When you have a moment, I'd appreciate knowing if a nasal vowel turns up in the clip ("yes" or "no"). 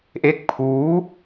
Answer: no